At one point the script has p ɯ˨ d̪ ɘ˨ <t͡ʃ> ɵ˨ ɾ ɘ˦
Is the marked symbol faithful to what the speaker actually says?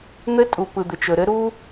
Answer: yes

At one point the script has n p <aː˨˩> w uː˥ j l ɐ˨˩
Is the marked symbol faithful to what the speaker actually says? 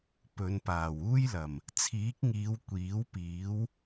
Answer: yes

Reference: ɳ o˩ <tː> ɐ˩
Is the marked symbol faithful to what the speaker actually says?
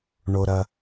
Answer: no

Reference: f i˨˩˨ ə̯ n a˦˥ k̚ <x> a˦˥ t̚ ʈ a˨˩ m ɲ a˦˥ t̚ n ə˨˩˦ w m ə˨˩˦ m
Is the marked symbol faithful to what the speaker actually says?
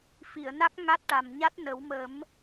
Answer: no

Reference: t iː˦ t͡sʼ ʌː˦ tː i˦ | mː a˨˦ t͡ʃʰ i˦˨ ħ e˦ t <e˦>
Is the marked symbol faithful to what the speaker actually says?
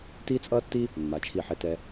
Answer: no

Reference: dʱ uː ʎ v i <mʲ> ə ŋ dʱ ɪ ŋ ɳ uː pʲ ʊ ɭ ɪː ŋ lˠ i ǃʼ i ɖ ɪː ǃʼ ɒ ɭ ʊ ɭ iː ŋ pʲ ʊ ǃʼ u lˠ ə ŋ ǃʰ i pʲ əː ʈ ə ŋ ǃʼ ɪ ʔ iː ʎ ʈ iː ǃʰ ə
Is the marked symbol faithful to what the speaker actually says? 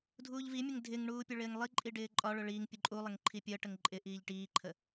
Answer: yes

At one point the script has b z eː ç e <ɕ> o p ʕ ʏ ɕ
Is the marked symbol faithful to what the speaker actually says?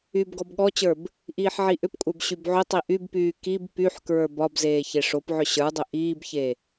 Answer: no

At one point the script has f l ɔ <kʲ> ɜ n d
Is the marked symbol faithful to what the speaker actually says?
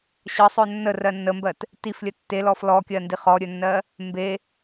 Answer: yes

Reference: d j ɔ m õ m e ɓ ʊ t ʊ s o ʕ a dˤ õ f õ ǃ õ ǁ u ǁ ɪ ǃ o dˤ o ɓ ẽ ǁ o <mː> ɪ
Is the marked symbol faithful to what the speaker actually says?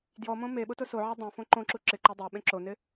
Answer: no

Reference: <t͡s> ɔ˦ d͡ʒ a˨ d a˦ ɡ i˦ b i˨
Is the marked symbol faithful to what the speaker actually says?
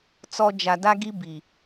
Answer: yes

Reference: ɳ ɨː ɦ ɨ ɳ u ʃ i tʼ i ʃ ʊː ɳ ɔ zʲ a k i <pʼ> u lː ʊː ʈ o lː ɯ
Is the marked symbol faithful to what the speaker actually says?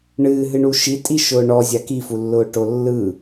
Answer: no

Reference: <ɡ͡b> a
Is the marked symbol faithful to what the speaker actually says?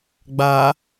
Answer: yes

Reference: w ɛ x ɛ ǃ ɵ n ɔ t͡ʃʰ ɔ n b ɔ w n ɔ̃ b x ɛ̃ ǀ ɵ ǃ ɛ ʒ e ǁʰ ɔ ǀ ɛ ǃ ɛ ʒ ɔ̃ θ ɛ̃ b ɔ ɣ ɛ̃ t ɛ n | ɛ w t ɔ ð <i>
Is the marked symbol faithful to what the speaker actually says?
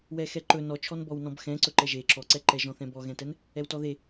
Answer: no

